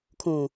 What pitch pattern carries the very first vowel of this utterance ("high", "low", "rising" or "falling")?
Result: low